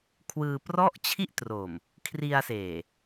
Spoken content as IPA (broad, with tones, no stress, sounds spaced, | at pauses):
kʰ w ɯː˧ p r ɔ˥˩ ʔ t͡ɕʰ i˥˩ ʔ t r o˨˩ m | kʰ r i˧ a̯ s eː˨˩